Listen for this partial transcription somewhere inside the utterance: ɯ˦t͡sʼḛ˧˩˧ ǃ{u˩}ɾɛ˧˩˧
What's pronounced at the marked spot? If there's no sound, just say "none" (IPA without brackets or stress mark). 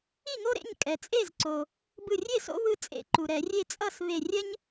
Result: u˩